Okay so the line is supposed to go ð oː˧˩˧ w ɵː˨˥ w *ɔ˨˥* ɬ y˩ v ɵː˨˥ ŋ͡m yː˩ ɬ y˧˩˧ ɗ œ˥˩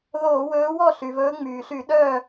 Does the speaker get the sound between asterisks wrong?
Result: yes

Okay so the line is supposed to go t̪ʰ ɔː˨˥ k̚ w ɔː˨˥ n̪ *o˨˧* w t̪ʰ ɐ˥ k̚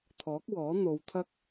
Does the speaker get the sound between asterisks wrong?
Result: no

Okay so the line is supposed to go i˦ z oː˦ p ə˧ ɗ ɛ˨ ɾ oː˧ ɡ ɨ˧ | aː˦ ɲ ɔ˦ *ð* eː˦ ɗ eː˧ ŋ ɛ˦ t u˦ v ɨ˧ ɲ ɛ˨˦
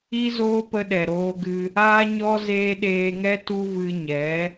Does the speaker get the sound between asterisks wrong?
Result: yes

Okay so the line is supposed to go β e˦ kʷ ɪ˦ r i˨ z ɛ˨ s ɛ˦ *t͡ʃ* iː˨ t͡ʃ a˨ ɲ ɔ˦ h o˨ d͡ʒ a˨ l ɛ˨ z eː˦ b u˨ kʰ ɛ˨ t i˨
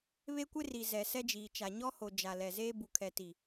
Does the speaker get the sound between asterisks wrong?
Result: yes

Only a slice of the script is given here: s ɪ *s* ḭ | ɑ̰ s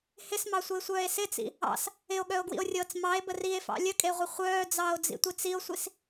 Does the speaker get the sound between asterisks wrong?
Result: yes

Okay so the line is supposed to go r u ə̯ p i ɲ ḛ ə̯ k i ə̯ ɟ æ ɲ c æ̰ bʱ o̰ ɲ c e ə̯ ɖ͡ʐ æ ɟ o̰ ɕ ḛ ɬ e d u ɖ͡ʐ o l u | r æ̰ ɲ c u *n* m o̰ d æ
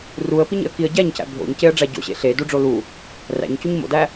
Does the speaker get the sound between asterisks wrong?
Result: yes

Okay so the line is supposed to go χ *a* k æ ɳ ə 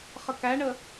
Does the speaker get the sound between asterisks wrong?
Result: yes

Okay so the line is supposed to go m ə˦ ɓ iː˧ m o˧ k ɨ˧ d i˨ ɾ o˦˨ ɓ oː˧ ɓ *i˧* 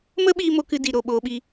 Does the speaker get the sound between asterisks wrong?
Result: no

